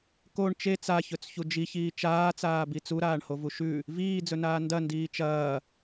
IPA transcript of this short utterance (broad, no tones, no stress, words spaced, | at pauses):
koɳ t͡ʃe t͡saçɵt͡sçu d͡ʒiçiː t͡ʃaːt͡saːbi t͡suɾaːɳhovu ʃʉ | viːd͡zɵnaː ndɐndiː t͡ʃɐː